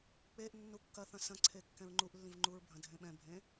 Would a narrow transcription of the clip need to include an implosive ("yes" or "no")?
yes